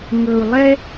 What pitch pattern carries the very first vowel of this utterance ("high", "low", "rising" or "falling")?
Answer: low